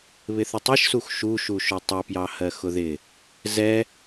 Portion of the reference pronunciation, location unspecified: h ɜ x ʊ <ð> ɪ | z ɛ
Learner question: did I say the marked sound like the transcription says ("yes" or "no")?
yes